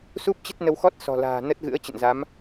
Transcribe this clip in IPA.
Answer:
s u˦˥ p̚ t͡ɕ ə˦˥ t̚ n ə˧ w x ɔ˦˥ t̚ s ɔ̤˨˩ l a̤ː˨˩ n ə˦˥ t̚ ɣ ɨ̰˧˥ ə̯ t͡ɕ ə̰˧˨ n z a˨˦ m

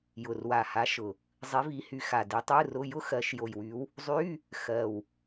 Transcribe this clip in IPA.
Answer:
j ʊ˨˩ r w a˨˩ h a˨˦ ʃ ʊ˨˩ | zˤ i˨˦ v i˨˦ h y˨˦ x a˨˩ d i˨˦ tˤ ɯ˧˥˧ r ʊ˧˥˧ j ʊ˥ x ɜ˨˦ ʃ j o˨˩ j w y˨˦ w | zˤ y˧˥˧ | x ɜ˨˩ w

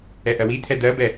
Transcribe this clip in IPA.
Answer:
ɛ ʔ ɜ w i t̪ʰ ɛ d̪ ɜ b ɛ

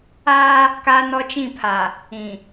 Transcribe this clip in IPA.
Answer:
aː˦ | k aː˦ n ɔ˦ t͡ʃ ĩ˦˨ pʰ a˨ | ĩ˨

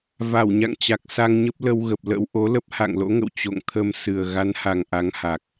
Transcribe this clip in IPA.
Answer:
v a˧˩ w ɲ a̰˧˨ ŋ t͡ɕ a˨˩ k̚ s a˧ ŋ ɲ ə˦˥ p̚ l ə˧ w ɣ ə˨˩ p̚ l ə̰˧˥ w ʔ o˨˦ l ə˦˥ p̚ h a̰˧˨ ŋ l o̰˧˥ ŋ ə̰˧˨ w t͡ɕ o̰˧˨ ŋ t̪ʰ ə˧ m s ɨ˨˩ ə̯ ɣ a˨˦ n h a˨˩ ŋ ʔ a˨˦ ŋ h a˨˩ k̚

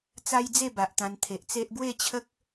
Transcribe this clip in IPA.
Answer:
t͡s a˦ j d͡z e˥˧ b a˨ ʔ t̪ ã˧ n t̪ʰ e˨ ʔ t͡s e˦ ʔ ɡ w e˥˧ t͡ɕʰ ə˦ k̚

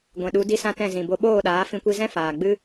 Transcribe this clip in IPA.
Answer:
ɡʷ ɛ̃˨ ɗ u˨˦ d i˦ s ã˦ t ɛ̃˦˨ z ĩ˨ b o˧ ɓ oː˦˨ ɗ aː˨˦ f ĩ˧ kʷ i˧ z ɛ̃˦ f aː˨ ɡ͡b ɨ˦

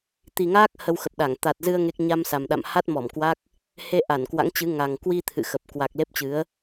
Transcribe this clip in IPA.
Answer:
t̪ i˨˩ ŋ aː˦˥ k̚ h ə˧ w x ə˨˩ p̚ ɗ a˧˩ ŋ t̪ a˨˩ t̚ z ɨ˧ ə̯ ŋ e˦˥ k̚ ɲ a˧ m s a˨˩ m ɗ a̰˧˨ m h a˦˥ t̚ m ɔ˧˩ m k w a˦˥ k̚ | h e˧ ʔ a˧˩ n k w a̰˧˥ ŋ t͡ɕ ɨ˨˦ ŋ a˨˩ ŋ k w i˧ t̪ʰ ɨ̰˧˨ x ə˨˩ p̚ k w a˨˩ k̚ l e˦˥ p̚ t͡ɕ ɨ˨˦ ə̯

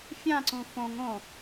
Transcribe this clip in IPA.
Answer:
fʲ ã ǀ ũ f õ ŋ õ

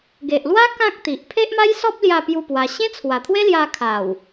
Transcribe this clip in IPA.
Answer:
ɡ e˨ ʔ l w a˦ k ã˦ k̚ t̪ i˨ ʔ pʰ e˦ ʔ m a˦ j s ɔ˦ p̚ l j a˥˧ p j u˥˧ p w a˧ ɕ ẽ˦ t͡sʰ w a˨˩ t̪ʰ w e˦ l j a˧ kʰ a˨˩ w

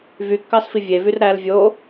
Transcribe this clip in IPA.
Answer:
v y kː ɑ s f i vʲ e v y r ɾ æ l vʲ o

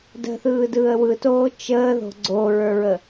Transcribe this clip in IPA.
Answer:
d ə̤ θ ɯː d ɯː ə̯ w ɯ t oː t͡ʃ əː ð o̤ ɡ͡ǀ o ɹ ə˞ ɹ ə

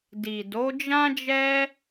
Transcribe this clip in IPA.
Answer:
d i˨ d o˨˦ d͡ʒ ã˦ d͡ʒ ɛ˦

